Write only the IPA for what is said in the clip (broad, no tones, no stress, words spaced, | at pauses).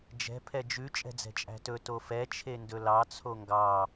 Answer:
d͡ʒɛ̤ pʰɛd͡ʒʉ t͡ʃʼɛ̤d͡zɛ̤t͡ʃʼæ̤tɵ tofɛ t͡ʃʰendɵlɑ t͡sʰoŋɡɑ